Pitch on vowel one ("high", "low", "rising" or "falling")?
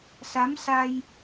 rising